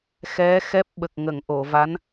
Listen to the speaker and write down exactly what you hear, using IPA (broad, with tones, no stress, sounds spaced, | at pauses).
x ɛ˧˥ x ɛ˦˥ p̚ ɓ ə˨˩ k̚ ŋ ə˨˩˨ ŋ ʔ o˨˩˨ v a˧˥ n